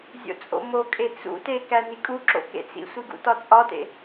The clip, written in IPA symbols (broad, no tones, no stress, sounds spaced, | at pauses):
zʲ o̰ t͡sʼ o̰ m o kʼ e t͡s ṵ t e k æ n i kʼ u ǁ o̰ k ḛ t͡s ḭ sʷ i ɡ ṵ t ɒ t͡sʼ ɒ t ḛ